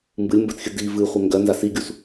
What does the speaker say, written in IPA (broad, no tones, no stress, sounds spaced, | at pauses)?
m b ɨ lʲ m b ɜ t xʲ ɨ d i v ɨ χʷ ɛ ŋ ɡ ɜ n z a s i ɡʲ u s